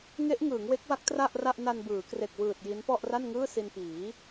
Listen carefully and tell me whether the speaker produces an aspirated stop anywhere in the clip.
no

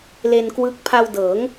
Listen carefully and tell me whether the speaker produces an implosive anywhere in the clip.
no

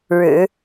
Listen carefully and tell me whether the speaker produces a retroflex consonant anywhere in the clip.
yes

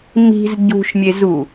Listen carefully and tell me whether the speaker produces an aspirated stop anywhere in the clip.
no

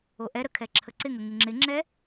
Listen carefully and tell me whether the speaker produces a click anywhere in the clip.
yes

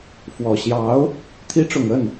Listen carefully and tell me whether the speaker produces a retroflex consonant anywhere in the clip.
yes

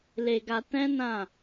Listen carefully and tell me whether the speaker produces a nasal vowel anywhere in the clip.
yes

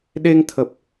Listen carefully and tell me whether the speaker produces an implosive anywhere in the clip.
yes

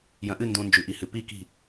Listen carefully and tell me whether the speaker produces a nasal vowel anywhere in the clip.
yes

